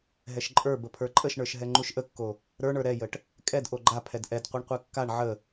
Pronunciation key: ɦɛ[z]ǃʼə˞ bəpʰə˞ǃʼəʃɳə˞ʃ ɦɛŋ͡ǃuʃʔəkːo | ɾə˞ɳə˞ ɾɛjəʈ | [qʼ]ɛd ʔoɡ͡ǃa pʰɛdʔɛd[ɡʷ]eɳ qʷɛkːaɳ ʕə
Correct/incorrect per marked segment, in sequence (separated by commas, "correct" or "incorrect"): incorrect, incorrect, incorrect